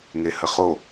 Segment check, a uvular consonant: present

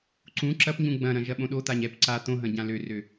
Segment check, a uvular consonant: absent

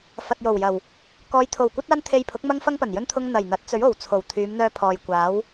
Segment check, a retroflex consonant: absent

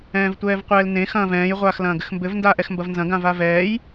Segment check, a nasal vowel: present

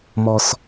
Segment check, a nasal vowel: absent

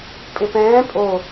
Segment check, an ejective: present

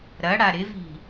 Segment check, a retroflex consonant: present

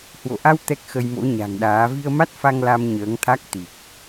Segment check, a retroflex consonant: absent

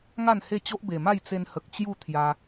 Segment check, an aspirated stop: present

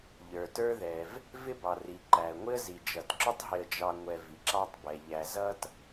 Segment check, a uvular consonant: absent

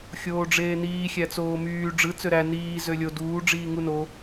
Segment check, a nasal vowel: absent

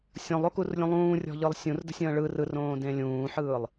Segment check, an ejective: absent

